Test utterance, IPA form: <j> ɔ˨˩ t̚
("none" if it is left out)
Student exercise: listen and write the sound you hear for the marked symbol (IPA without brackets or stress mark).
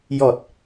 j